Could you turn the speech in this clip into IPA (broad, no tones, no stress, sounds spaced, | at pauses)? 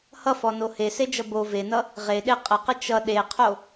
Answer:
h ʌ f ɔ n o h e s e d͡ʒ ʌ b o v e n ʌ | ʁ e ɗ e qʼ ə q ə t͡ʃ ʌ ɗ e qʰ o